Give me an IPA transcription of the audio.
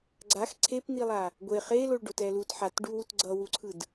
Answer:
ɡ͡ǀ a x ǀʰ e p n̪ i lˠ a | ɡʷ e χ e l o ɭ ɖ o t ɛ l u t ħ a t ɖ u w u t ɡ͡ǀ ʌ w u ǀʰ ɯ d

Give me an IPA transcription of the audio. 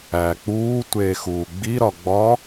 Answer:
æː k͡p uː tʷ eː x uː ɡ͡b i ɾ ɒ ɡ͡b ɒ

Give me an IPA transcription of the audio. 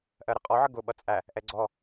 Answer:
ʔ ɜ ɾ ə qʼ ɔ ʕ ə ɡ ʊ ɓ ʌ t͡sʼ æ | ʔ ɛ ɡ͡ǀ ɔ

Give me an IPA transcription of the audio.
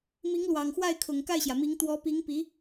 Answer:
m i˧˥ ŋ l w ɑ˨˩ ŋ x w a˥˩ ɪ̯ kʰ ʊ˨˩ ŋ k a˥˩ ɪ̯ ɕ j ä˩ m i˧˥ ŋ t̪ w ɔ˧˥ p i˧˥ ŋ p i˧˥

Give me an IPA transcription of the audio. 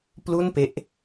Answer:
p l u˥˩ n p e˦˥ ʔ

